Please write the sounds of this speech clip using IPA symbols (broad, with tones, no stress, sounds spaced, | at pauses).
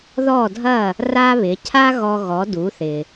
ð ɔ˥˩ dʱ ɐ˥˩ | r a˥ β ɪ˩˥ cʰ a˥ ɣ ɔ˧ ɣ ɔ˩˥ d u˩˥ θ ɪ˩